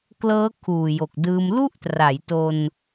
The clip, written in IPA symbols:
klɤː˦˥ kʰuː˨˩jo˨˩k̚dɯː˧m lu˥˩ʔtra˩˦j to˧n

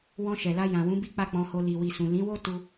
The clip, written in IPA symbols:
wɔ̃˧ʃɛ˨la˧ jã˨wũ˨˦ bi˦k͡pa˦˨k͡pɔ̃˧ho˧ li˨wi˨sũ˨ lĩ˨˦wo˦tu˧

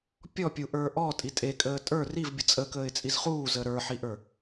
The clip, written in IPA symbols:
pʲɔpʲuʔə˞ ʔɔtʼi tʼekʼəː tʼə˞ rivbʲə t͡sʼəkəːɪ̯t͡sʼiz χuːzəː ɾə˞ħiʔə˞

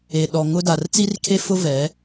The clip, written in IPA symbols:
e˨ɗɔ˨ ŋʊ˦da˨r t͡si˦rkʰe˦fʊ˦vɛ˨˦

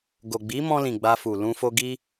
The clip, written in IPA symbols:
ɡo˨ ɡ͡bi˨˦mɔ̃˧lĩ˨ ɡ͡ba˧fu˨ lũ˧fo˧ ɡi˦

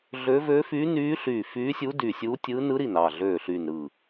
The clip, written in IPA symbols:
ɮøː˧˥vøː˧˥fyː˧˥nyː˧˥ ɬyː˧˩fyː˧˥sʲu˧˥ dyː˧˩sʲuː˧˥tʲɯː˧˥ nɯ˧˥ɾi˧˩nɑ˧˩ɮøː˧˩ ɬyː˧˩nɾɯː˧˩

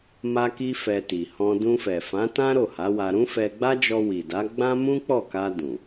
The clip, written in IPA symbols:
ma˧ki˧ fɛ˧ti˨ hɔ̃˧ dũ˧fɛ˨fã˨˦ tã˦ ɾo˦˨ha˨˦wa˧ ɾũ˦fɛ˧ɡ͡ba˦d͡ʒɔ˧ wi˨da˨˦ɡ͡bã˦ mũ˦k͡pɔ˦˨ka˧ dũ˨

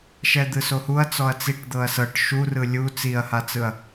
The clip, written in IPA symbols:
ʃɛd̪ɯsohuɐ̯ t͡sɔɐ̯t͡siʈ d̪ɤɐ̯sɤʈ ʃurɯ lʲu t͡siɐ̯hat͡sɯɐ̯

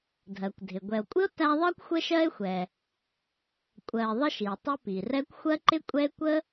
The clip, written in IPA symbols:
dʱɜ˩kʷ dʱɪ˩ɡʷɛ˨o̯kʷʼɪ˥o̯ tæ˦ðˤɜ˥kʷ xʷə˦ʃɜ˦e̯xʷɛ˨ | kʷʼɜ˨e̯ ðˤə˦ʃi˩e̯ tˤɪ˦pi˩rɛ˦kʷ xʷɜ˥ǃɪ˥kʷʼɛ˥e̯ kʷə˥

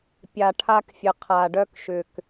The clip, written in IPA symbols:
pʲa˨ ʈʰa˧kfʲə˨ qʰa˨ɖœ˧kʃʏ˨k

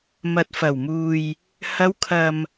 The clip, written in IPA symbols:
mɐ˨t̚fɐ˨˩wmuː˨j | hɐ˨˧wkʰɐ˨m

